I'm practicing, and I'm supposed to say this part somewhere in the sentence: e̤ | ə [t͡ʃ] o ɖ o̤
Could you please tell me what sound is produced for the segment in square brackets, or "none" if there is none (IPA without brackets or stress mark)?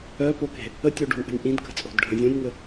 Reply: tʲ